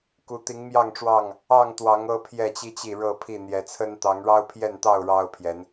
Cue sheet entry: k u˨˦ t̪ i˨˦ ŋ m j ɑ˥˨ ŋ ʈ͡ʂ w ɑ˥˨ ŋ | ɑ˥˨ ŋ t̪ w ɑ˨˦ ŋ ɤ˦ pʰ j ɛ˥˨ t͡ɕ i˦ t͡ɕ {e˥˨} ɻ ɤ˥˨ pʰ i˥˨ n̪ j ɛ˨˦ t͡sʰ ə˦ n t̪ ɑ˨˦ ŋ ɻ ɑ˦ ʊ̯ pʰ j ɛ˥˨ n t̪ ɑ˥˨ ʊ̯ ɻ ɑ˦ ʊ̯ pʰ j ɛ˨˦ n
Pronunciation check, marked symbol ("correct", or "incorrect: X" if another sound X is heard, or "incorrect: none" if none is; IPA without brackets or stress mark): incorrect: i˥˨